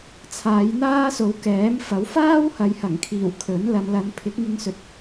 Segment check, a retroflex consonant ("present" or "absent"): absent